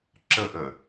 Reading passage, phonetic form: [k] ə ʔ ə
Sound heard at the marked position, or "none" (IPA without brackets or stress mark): ǁ